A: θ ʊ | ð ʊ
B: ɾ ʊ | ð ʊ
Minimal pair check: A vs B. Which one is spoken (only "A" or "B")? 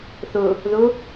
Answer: A